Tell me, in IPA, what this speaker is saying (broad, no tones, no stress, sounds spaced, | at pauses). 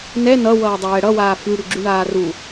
n ɛ n ʌ w ʌː dˤ ʊ j ɛ ɽ ʌ w aː f y ɽ y ɡ͡ǁ y ɳ aː r u